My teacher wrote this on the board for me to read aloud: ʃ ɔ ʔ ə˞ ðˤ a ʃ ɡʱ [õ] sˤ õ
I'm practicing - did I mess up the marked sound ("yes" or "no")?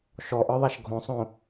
no